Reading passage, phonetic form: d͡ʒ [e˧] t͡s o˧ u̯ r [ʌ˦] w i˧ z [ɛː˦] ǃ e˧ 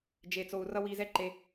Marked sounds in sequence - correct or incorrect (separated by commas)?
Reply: correct, correct, incorrect